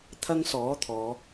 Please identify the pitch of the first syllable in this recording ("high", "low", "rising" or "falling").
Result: high